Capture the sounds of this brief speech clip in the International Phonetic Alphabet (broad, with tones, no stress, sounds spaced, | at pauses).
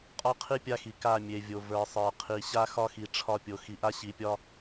qʼ ɒ˦ qʰ i˦ pʲ a˦ x i˨ k a˦˨ mʲ e˨ vʲ o˨ v ə˞˨ sˤ ə˞˨ qʰ i˨ ɕ a˦ x ɒ˦ x i˨ ʈ͡ʂʰ ɒ˦˨ pʲ o˨ x i˨ ʔ a˦ ɕ i˨ pʲ ɒ˦